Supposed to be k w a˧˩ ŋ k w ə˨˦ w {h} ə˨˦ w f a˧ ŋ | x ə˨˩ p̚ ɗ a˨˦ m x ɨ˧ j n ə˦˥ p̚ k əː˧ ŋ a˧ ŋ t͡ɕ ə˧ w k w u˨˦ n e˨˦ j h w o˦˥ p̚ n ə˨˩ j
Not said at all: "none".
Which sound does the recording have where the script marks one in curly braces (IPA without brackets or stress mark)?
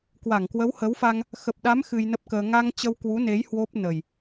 h